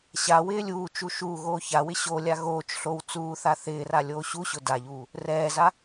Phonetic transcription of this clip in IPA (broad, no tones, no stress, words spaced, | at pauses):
ɕa wɪːlʲuːt͡ʃu ʃu ɣoːçawɪ ɕolʲa ɣoːt͡ʃ ɬow t͡suːθa θɪːra lʲoːɕuɕʊ daʎuː | rɛːza